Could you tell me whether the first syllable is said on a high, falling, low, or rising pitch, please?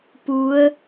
rising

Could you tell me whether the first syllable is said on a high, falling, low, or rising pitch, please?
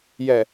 low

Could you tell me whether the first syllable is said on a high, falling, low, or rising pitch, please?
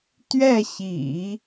falling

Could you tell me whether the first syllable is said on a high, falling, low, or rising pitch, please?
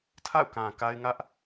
falling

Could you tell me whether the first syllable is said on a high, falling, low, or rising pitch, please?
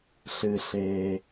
low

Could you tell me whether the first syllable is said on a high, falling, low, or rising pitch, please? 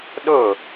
falling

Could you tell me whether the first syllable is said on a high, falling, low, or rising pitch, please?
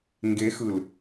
rising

